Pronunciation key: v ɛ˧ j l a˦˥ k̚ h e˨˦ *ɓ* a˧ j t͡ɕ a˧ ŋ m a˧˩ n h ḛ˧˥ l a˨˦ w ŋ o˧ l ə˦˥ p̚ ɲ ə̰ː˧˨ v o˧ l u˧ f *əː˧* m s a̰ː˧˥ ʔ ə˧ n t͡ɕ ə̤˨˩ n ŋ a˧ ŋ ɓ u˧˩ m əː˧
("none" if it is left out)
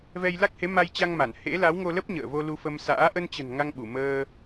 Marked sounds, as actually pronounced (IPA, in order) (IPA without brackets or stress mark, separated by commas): m, ə˧